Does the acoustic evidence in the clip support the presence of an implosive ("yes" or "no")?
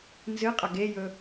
no